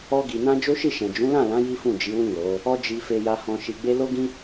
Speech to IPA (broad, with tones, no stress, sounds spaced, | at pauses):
ɔ˧ ɡ i˨ n ã˧ d͡ʒ o˦ ʃ i˦˨ ʃ ɛ̃˨ d͡ʒ ũ˨˦ l ã˦˨ l ã˨˦ j i˦ f ũ˦˨ d͡ʒ i˨˦ w ĩ˦˨ l o˨˦ | ɔ˧ d͡ʒ i˨ f e˨ j a˨ h ɔ̃˨ ʃ i˨ ɡ͡b e˧ l o˦ ɡ ĩ˦